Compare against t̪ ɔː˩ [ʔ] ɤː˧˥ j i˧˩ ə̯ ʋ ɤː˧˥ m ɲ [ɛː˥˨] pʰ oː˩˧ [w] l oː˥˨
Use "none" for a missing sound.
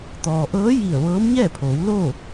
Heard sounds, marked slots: ʔ, ɛː˥˨, w

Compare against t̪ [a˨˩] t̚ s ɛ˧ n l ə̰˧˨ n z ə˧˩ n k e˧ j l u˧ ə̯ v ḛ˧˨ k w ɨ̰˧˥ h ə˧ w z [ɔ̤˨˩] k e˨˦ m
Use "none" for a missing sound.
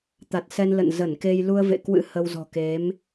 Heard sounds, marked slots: a˨˩, ɔ̤˨˩

